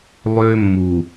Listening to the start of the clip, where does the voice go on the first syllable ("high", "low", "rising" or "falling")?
high